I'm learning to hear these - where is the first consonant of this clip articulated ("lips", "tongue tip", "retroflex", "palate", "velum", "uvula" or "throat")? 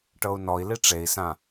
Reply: retroflex